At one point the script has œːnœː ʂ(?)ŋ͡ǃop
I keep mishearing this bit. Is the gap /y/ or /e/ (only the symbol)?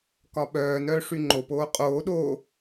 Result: y